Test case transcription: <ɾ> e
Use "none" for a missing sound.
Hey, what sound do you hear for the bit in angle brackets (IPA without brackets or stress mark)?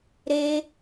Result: ɾ